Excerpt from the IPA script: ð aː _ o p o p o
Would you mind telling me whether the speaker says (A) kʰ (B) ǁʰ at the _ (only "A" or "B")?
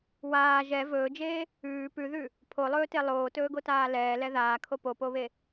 A